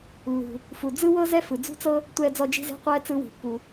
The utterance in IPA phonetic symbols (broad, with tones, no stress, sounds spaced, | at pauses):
lː ṳ˩ | f u˩ d͡z ɯ˥ w ɤ˥ z ɛ˥ f ɯ˩ d͡z ṳ˥ t͡s ɤ˥ | tʷ ɛː˧ d͡z ɔ˧ d͡ʒ i̤˧ z e̤˧ qʷ ɛː˧ t͡s ɯ˧ w i̤˩ pː u˩